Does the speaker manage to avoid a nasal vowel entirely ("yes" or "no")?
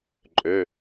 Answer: yes